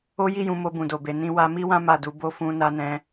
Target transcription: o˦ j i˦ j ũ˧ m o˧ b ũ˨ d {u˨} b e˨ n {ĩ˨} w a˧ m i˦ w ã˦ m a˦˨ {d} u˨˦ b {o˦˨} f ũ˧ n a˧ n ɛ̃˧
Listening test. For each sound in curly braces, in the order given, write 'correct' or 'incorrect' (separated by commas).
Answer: incorrect, incorrect, correct, correct